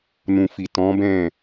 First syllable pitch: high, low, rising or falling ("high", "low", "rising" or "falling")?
low